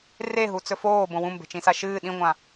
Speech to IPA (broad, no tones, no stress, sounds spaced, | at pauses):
r e ɦ u t͡s ɵ f oː b õ w ũ m b e̤ t͡ʃ ĩ s a ʃ ɨː ɗ ĩ ŋʷ ã